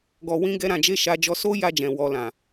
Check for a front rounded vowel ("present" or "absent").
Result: absent